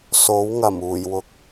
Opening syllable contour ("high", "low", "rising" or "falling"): rising